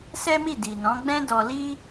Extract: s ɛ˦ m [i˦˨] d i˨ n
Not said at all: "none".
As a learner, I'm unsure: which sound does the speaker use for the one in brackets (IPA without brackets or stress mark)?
i˦˨